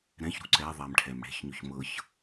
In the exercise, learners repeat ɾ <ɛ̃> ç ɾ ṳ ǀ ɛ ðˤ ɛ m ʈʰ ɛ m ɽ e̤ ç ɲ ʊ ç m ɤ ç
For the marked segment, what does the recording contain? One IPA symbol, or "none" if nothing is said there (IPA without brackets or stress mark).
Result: ɛ̃